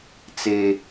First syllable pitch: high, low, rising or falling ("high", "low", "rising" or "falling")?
high